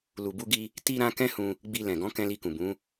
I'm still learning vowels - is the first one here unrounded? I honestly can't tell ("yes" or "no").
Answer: no